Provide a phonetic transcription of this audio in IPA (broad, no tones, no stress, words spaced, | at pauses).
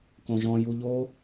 kõʒɔ̃ juʎo